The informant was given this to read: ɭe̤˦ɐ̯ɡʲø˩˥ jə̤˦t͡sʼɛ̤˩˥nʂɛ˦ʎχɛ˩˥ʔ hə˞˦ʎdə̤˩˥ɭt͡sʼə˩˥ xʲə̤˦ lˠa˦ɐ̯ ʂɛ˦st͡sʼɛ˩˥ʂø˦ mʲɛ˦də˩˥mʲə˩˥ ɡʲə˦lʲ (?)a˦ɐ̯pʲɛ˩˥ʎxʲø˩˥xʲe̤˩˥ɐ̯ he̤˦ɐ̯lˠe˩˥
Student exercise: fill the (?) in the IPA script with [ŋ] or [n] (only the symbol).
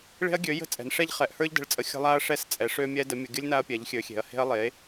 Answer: n